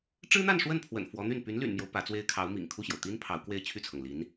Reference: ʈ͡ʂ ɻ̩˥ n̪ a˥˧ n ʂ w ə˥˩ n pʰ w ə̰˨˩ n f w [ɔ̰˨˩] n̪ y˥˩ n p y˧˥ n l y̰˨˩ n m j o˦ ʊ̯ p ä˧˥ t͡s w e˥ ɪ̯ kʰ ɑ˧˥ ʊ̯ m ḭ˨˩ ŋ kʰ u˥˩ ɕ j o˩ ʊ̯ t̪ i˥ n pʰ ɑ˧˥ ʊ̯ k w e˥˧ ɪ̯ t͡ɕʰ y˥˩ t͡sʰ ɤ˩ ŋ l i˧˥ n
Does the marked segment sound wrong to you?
yes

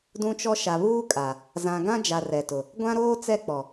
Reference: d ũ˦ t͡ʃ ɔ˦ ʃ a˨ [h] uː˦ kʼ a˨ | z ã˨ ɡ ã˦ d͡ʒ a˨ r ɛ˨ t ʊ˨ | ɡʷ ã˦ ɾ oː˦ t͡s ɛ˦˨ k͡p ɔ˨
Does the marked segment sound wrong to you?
yes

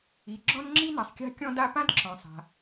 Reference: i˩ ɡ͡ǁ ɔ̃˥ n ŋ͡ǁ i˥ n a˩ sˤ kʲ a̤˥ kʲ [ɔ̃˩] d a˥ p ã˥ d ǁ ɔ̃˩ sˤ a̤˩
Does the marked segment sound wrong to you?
yes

